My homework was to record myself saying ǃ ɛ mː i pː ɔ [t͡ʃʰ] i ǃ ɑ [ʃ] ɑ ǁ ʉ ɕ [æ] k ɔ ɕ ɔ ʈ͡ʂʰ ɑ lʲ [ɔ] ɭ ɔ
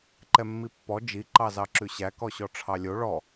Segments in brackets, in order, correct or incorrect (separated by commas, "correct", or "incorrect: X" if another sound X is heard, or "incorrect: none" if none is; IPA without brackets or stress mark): incorrect: d͡ʒ, incorrect: z, correct, incorrect: o